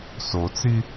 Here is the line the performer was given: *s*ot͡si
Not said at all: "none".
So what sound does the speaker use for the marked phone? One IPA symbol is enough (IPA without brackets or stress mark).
s